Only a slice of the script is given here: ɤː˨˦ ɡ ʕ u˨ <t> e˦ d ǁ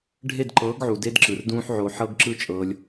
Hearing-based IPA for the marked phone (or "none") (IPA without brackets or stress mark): d